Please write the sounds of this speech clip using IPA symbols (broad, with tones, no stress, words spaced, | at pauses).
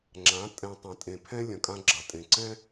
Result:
ŋ͡ǁã˨˦tʼɛ̃˨ tˤɐ̃˨tʼẽ˨pʰɛ̃˦ lʲɐ̃˨kʼã˦ɡ͡ǁɐ˨tʼẽ˨ ǀɛ̃˦